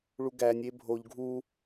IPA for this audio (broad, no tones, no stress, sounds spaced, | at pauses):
ɭ u ɡ æ nʲ e bʱ o ʎ ɡʱ u